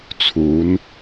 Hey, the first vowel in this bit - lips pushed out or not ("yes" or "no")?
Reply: yes